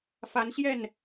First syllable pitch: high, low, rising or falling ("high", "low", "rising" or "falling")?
rising